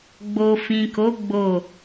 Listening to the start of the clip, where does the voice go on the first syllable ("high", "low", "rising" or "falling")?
low